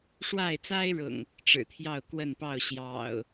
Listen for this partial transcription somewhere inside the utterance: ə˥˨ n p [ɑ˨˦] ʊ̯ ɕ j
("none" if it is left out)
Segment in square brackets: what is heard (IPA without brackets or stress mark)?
ɑ˥˨